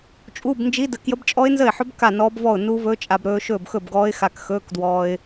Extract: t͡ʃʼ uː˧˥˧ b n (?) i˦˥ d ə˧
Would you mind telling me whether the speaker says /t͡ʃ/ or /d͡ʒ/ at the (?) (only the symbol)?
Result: d͡ʒ